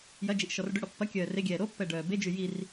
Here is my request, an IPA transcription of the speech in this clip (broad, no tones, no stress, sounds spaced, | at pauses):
j ɐ d͡ʒ i ʔ ʃ ɔ r ɖ ʏ ɽ ɔ pː ɐ kʲ œː r e ɡʲ ɛː ɾ o pː ɛ ɖ œː b e d͡ʒ y j i r